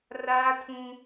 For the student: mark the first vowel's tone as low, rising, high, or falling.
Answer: high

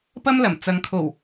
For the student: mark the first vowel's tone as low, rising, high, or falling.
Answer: high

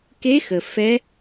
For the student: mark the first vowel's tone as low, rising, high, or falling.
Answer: rising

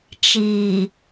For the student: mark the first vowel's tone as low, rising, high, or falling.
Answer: low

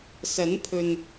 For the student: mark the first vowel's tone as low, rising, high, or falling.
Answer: rising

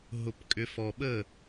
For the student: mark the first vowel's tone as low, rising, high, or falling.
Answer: low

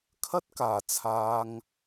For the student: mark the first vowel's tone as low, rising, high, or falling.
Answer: high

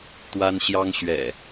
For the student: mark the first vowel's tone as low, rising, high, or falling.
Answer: high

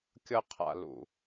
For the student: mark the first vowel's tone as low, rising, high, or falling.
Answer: high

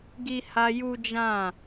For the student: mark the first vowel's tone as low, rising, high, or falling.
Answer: high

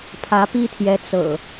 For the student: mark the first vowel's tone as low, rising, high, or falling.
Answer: rising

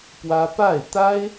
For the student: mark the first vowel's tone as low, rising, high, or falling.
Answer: high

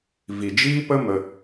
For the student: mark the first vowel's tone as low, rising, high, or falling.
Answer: low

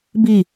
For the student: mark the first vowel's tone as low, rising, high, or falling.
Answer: falling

